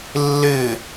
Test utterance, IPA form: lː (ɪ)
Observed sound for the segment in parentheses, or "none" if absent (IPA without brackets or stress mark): ɪ